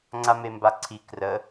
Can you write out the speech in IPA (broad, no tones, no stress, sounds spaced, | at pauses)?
ŋ͡ǀ a m e m b a ǀʰ i k r ə